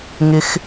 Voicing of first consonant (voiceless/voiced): voiced